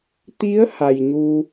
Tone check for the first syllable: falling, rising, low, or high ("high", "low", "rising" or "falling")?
rising